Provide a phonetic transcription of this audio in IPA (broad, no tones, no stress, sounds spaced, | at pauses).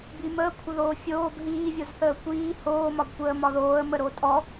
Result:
b i m əː kʷʰ ə ð oː fʲ oː b ɦ iː vʲ o z θ əː kʷ iː h oː m ɒ b kʷ əː m ɒ ð oː ə̯ m ə ɾ o tʼ ɔ